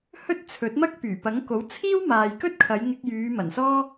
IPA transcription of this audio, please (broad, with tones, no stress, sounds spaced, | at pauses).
h ɵ˥ t̚ t͡sʰ ɵ˨˥ t̚ m ɐ˥ k̚ p yː˨˩ p ɐ˨˥ ŋ k o˨˥ w t͡sʰ iː˥ w m aː˨ j k ɵ˥ t̚ kʰ ɐ˨˧ j ŋ ɪ˧ k̚ j yː˨˧ m ɐ˨˩ n s ɔː˥